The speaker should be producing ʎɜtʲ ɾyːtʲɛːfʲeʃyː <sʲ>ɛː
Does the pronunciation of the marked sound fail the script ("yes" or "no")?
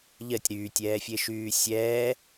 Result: no